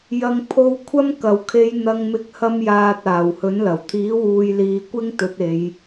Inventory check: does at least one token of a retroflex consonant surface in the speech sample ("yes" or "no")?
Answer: no